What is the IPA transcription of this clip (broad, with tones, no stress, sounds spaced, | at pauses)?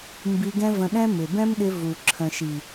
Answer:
m b i˧ ɡ ɛ̃˦ v ə̃˧ ɗ ɛ̃˦ m ɪ˨ b ɛ̃˦ m ɗ ɪ˧ v u˨ ǁʰ ə̃˨ ʃ i˨